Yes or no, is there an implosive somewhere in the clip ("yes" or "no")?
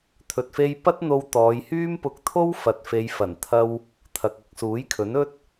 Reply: no